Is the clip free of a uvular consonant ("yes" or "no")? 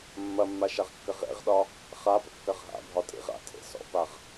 no